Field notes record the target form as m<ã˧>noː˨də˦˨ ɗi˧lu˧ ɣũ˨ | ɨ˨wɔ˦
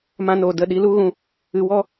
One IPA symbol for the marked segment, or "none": ã˧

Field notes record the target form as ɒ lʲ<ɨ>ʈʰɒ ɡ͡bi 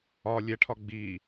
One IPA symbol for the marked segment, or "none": ɛ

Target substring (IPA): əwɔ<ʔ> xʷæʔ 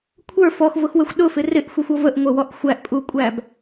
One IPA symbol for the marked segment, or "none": ʔ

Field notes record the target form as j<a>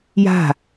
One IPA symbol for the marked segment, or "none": a̤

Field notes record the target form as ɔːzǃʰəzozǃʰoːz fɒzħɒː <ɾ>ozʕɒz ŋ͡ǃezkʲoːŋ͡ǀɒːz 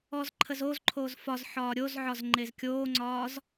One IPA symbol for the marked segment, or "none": ɾʲ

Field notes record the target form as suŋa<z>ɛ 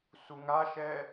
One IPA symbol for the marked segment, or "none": ʃ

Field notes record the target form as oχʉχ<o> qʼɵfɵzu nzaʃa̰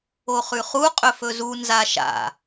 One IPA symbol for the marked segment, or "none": u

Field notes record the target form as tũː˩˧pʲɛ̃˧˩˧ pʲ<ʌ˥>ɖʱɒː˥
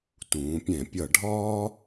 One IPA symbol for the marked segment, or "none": ʌ˧˩˧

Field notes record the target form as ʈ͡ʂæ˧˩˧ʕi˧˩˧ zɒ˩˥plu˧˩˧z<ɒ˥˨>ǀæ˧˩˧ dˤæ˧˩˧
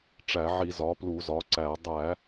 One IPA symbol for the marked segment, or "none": ɒ˩˥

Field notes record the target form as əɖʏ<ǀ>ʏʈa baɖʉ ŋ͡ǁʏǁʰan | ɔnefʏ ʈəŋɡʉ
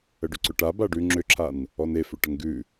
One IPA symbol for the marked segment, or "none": ǀ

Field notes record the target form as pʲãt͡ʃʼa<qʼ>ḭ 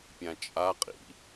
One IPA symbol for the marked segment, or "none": qʼ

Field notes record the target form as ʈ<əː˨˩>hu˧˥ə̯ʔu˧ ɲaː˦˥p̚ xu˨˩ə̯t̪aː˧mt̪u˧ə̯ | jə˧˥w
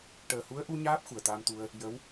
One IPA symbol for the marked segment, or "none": əː˨˩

